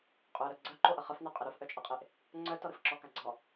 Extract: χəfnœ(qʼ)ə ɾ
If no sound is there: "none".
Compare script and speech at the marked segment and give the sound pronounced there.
qʼ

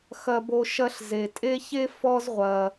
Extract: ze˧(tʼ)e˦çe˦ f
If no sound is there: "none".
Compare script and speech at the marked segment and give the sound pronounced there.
tʼ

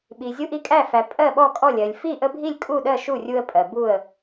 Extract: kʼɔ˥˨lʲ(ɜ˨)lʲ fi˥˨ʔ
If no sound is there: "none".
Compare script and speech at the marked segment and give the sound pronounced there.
ɜ˨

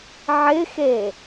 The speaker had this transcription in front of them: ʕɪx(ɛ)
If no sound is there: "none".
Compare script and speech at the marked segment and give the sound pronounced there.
e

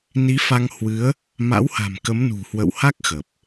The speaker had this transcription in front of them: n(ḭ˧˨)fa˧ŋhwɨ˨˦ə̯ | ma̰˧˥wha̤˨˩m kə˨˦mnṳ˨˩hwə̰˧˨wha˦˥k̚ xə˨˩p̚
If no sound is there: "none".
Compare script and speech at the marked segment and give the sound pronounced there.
i˨˦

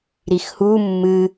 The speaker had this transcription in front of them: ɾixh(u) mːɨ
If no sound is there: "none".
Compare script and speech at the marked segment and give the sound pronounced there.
u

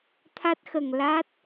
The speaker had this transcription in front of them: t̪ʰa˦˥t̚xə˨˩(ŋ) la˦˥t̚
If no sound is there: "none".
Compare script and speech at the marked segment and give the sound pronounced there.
ŋ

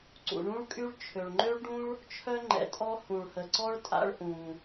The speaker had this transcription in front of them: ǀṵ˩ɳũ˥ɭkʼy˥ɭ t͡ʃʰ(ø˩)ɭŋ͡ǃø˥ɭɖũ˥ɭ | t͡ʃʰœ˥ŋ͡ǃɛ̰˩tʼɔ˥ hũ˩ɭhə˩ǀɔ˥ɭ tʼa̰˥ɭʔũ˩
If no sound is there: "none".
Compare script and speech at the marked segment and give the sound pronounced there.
ø˩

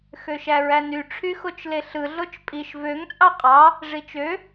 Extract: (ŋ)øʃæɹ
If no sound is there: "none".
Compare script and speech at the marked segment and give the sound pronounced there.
x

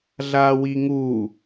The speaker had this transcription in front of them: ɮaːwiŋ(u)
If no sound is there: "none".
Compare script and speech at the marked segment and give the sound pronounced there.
u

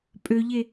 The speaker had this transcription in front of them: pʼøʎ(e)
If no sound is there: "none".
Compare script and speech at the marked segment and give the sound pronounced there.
e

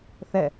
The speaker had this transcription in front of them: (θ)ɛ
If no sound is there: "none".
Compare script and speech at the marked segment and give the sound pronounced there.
θ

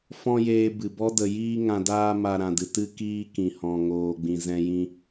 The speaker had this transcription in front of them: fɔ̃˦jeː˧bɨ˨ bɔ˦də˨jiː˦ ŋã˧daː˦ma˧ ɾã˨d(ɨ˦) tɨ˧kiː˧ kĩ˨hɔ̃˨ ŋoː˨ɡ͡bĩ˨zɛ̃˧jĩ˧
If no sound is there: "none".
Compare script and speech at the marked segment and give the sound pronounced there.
ɨ˨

